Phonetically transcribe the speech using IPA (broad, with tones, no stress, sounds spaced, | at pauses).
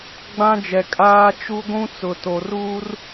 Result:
ɡ͡b ã˦ d͡ʒ ɛ˨ kʼ aː˦ t͡ʃ u˦ ɡʷ ũ˦ t͡s ʊ˨ t o˨ r uː˦ r